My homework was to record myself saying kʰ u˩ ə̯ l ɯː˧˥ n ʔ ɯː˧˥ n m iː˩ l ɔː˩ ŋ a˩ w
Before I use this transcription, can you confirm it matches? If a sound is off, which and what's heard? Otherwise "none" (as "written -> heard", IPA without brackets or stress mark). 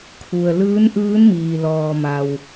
ŋ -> m